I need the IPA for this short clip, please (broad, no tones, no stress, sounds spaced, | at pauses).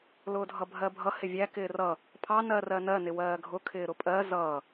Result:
l ʊː dʱ ʌ bʱ ɜ bʱ ʌ h ɪ vʲ æ k ɪː r ʌ | pʰ ɑ n ɜ r ɜ n ɜ n ɪ w ɜː ɡʱ ʊ kʰ ɪː ɾ ʊ pʼ ɜ z ʌː